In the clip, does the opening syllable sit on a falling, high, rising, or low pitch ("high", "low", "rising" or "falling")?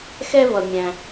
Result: high